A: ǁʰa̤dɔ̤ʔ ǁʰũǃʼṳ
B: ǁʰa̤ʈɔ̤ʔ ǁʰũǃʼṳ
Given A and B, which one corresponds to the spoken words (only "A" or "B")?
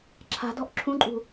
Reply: A